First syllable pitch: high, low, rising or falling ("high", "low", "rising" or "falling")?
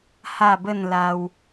falling